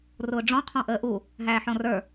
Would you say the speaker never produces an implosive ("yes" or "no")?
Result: yes